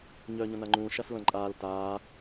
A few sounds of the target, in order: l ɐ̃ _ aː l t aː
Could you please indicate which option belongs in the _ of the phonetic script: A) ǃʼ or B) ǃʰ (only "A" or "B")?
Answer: A